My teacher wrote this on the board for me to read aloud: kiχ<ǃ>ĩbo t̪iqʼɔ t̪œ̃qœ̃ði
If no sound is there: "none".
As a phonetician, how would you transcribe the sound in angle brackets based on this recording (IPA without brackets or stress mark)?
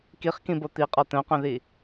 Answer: k